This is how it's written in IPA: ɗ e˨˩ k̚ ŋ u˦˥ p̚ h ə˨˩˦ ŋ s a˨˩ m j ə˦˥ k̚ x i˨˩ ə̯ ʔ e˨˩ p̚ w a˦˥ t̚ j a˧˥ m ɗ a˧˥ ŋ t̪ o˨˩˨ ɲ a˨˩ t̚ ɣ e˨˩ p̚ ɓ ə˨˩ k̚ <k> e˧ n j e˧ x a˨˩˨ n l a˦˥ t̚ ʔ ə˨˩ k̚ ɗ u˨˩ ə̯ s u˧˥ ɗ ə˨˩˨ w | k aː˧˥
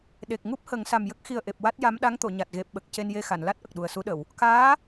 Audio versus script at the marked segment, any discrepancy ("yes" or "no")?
yes